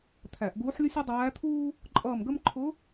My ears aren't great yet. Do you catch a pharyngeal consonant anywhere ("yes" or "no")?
yes